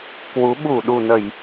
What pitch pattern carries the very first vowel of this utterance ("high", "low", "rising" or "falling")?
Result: rising